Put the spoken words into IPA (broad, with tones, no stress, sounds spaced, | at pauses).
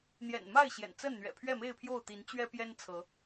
n̪ j ɛ̰˨˩ n m a˥˨ ɪ̯ ɕ j ɛ̰˨˩ n t͡s ə˥˨ n n̪ ɥ ɛ̰˨˩ pʰ ɥ ɛ˥˨ m e˥˨ ɪ̯ pʰ j o˥˨ ʊ̯ t̪ i˨˦ n t͡ɕ ɥ ɛ˦ p j ɛ˦ n t͡sʰ ɤ˨˦